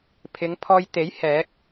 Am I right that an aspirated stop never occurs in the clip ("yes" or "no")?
no